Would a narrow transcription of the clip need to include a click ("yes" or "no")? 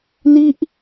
no